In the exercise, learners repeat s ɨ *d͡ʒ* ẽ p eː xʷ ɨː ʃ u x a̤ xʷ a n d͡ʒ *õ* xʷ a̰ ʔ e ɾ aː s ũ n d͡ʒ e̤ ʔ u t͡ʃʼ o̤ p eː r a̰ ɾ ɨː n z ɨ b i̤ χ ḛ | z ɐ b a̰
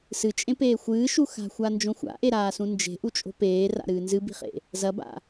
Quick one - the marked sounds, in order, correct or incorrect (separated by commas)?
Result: incorrect, correct